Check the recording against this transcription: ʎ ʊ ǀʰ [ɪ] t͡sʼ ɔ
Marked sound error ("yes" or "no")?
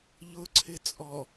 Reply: no